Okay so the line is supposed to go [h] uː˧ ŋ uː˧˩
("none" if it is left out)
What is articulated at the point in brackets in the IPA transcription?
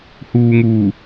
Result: h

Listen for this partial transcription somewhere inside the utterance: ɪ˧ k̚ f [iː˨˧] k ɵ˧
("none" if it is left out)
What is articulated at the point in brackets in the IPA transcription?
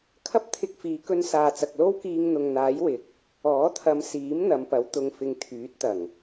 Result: iː˨˧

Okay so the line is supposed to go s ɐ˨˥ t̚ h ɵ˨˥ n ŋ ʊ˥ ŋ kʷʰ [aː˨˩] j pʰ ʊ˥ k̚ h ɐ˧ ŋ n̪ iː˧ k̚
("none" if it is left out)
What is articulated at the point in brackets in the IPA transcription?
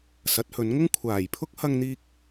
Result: aː˨˩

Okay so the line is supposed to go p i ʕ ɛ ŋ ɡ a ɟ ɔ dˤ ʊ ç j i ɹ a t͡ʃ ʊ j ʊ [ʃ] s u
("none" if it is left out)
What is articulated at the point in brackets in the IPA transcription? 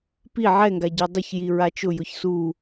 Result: ç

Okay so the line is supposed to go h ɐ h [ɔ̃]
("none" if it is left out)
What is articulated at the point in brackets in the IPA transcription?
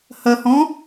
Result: ɔ̃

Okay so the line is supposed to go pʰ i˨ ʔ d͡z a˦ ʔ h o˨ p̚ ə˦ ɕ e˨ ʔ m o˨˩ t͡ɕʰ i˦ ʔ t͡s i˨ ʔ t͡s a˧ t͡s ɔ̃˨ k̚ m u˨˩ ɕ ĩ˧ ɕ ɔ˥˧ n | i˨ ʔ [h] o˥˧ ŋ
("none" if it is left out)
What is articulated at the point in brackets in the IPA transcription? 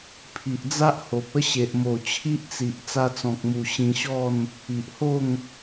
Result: h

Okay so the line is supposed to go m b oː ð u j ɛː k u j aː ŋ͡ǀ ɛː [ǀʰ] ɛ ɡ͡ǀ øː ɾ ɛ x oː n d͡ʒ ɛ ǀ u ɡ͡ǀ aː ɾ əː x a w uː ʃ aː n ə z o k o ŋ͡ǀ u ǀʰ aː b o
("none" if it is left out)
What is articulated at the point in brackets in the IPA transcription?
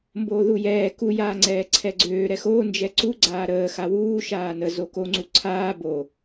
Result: ǀʰ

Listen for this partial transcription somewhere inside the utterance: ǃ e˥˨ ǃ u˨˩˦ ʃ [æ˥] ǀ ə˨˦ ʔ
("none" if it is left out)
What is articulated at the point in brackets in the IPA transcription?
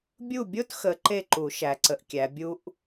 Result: æ˨˦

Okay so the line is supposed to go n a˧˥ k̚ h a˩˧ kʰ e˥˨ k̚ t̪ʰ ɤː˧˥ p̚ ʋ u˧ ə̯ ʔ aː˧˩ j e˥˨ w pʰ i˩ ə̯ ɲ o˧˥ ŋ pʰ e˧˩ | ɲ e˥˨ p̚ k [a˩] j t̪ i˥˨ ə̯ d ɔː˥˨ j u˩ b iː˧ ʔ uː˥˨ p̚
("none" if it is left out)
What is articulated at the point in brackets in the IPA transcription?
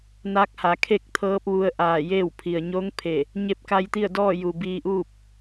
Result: a˧˥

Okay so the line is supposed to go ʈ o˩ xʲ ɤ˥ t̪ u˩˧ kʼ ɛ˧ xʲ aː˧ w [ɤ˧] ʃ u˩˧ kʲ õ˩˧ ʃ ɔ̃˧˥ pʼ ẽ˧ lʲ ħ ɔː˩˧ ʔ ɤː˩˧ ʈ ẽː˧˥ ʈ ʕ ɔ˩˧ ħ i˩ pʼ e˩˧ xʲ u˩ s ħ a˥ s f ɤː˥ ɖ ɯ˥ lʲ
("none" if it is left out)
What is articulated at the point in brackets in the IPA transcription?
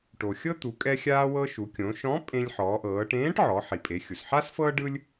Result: ɤ˧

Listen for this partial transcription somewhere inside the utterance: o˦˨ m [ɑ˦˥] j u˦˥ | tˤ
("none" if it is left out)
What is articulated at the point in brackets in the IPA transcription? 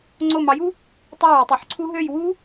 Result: ɑ˨˥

